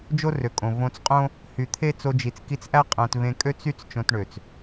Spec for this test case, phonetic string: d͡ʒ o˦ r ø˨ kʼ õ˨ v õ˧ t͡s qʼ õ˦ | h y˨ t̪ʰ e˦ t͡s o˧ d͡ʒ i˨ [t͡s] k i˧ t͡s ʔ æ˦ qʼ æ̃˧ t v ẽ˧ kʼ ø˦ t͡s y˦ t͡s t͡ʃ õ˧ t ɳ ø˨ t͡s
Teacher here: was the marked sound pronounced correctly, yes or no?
yes